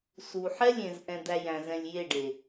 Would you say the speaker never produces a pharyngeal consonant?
no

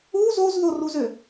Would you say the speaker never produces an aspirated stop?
yes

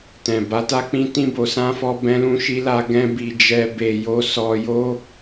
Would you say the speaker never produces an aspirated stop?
yes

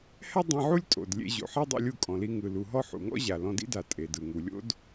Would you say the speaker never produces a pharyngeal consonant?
no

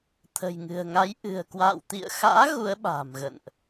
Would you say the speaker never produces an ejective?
yes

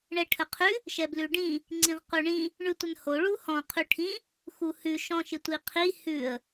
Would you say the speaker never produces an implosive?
yes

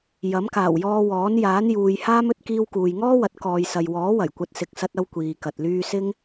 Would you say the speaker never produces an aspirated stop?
yes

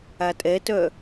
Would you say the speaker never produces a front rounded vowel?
no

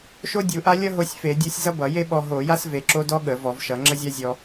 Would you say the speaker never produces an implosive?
no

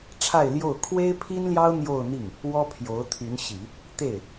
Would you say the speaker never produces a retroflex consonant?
no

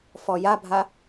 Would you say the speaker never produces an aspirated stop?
yes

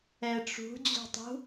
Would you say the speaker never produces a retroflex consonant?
no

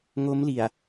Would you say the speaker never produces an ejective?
yes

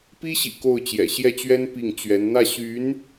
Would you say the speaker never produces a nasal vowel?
yes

